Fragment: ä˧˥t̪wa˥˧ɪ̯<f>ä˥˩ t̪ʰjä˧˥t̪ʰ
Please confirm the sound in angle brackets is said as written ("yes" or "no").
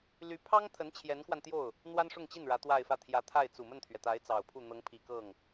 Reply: yes